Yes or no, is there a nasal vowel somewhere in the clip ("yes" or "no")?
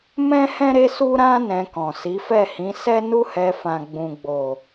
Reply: yes